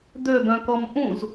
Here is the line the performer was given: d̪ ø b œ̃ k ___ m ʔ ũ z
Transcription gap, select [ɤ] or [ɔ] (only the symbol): ɔ